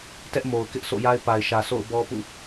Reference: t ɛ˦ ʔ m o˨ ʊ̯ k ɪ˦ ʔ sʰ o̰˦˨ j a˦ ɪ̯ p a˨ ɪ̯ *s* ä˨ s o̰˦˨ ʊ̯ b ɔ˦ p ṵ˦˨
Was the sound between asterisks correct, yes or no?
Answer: no